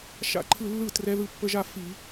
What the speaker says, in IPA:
ʃ a̰˧˥˧ ǃʰ ɯ˥˨ lː ɯ˥˨ t r ɛ˧˥ ð ɯ˧˥ pː ə˧˥˧ ʒ a˥˨ f i˧˩˧

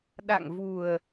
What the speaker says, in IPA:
ɗ a̰˧˨ ŋ v u˨˩ ə̯

